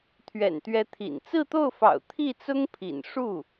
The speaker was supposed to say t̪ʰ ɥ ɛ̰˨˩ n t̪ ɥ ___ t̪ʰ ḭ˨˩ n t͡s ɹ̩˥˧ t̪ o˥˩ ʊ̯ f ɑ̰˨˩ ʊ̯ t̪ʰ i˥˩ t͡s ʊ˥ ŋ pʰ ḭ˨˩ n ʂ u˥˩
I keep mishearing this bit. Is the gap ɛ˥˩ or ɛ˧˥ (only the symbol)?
ɛ˧˥